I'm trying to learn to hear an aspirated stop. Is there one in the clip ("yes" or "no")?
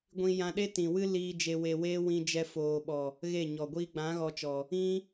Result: no